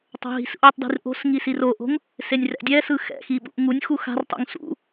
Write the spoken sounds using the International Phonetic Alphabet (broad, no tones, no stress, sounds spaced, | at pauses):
tˤ o̤ ɦ i̤ s ʔ u tˤ d i̤ r ʔ o̤ s ŋ i s i r o ʔ o̤ ŋ | s e nʲ r ɛ̰ dʲ ɛ s ɯ x ɛ̰ x i ɓ ṵ ʔ ŋ u nʲ x u x a̤ r tˤ ṵ ŋ s ṵ